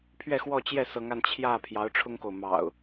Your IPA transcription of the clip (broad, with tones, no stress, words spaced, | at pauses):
pʰɥɛ˥˨xwɔ˥˨t͡ɕjɛ˥˨ sɤ˨˦ŋa˧n t͡ɕʰjä˥˨ pʰjɑ˨˦ʊ̯ʈ͡ʂʰʊ˦ŋko˨ʊ̯ mɑ̰˨˩ʊ̯